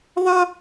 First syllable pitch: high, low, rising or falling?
high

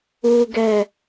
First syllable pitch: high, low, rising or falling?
low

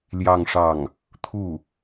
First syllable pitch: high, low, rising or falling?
falling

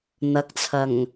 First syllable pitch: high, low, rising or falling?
rising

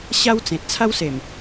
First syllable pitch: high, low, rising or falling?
high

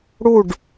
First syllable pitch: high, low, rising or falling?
falling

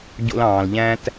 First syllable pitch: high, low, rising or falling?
high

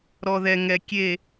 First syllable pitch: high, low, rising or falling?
low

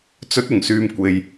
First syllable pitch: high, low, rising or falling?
rising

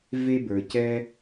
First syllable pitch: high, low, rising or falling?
high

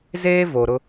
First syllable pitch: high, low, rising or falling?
high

